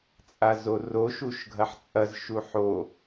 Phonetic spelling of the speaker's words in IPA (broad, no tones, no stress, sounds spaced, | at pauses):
t͡sʼ a z o r o ʃ u ʃ ɡʱ ɐ ħ t͡sʼ ɐ z ʃ u ħ o